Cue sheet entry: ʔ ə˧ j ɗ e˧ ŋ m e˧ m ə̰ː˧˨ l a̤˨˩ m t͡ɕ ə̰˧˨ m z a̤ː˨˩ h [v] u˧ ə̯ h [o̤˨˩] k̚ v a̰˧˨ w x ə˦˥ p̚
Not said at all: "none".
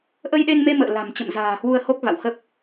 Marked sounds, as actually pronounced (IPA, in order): w, o˦˥

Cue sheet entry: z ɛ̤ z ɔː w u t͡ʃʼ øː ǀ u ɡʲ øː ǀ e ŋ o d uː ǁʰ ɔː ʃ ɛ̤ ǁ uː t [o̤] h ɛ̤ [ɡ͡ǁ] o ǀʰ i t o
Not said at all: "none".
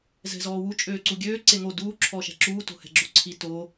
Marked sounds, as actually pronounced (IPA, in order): o̤, ɡ͡ǁ

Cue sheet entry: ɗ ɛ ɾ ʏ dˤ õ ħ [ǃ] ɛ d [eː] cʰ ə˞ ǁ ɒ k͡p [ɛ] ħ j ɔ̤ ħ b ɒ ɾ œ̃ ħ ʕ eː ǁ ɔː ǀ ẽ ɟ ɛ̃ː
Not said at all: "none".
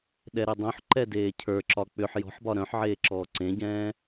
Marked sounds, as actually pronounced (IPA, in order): ǃ, eː, ʏ

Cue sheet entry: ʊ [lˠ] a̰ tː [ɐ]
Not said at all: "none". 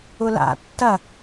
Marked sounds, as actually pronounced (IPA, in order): l, ɐ

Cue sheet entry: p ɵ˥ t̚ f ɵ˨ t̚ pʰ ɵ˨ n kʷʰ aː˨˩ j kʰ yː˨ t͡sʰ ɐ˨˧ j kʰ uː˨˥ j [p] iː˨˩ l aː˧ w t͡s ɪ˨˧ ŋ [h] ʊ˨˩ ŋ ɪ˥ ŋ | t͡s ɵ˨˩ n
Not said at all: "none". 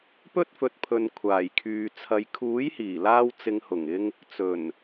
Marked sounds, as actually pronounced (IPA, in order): h, h

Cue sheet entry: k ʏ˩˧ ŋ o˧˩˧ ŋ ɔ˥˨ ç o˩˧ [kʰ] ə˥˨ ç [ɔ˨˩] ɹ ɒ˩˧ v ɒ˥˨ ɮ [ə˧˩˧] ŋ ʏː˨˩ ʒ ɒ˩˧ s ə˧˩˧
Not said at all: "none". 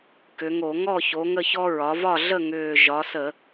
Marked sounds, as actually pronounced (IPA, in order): ŋ, ɔ˦, ə˥˨

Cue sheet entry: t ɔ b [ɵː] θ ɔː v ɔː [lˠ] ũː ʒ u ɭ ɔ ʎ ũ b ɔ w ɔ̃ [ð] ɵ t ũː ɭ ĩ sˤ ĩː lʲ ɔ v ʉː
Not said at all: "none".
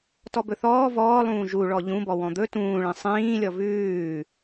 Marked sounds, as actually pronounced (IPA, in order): ɵ, lˠ, d̪

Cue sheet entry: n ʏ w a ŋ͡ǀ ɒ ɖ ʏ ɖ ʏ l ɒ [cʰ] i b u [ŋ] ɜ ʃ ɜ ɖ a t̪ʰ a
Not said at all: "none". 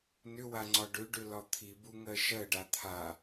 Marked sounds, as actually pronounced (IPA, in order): t̪ʰ, ŋ

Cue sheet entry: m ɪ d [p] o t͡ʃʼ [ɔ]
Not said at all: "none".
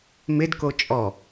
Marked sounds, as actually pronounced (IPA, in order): k, ɔ

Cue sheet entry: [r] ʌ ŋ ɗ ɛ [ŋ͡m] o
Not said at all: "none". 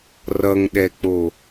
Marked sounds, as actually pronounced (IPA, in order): r, k͡p

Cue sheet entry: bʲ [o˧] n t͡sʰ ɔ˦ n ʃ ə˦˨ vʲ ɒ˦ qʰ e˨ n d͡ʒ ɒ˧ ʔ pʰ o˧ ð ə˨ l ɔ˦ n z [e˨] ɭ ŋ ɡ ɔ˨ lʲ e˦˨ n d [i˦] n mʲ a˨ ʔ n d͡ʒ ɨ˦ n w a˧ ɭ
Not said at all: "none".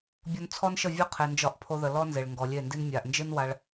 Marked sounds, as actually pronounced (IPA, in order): o˧, e˨, i˦

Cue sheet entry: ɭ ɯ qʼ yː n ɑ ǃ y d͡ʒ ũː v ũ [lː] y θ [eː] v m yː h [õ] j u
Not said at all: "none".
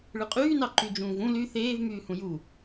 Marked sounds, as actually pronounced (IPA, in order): l, eː, ũ

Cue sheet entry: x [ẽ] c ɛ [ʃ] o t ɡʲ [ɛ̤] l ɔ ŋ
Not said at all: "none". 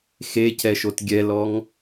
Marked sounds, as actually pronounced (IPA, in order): e, ʃ, ɛ

